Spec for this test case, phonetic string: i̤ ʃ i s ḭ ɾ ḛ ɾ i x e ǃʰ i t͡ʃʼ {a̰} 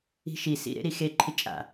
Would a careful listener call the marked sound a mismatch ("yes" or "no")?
no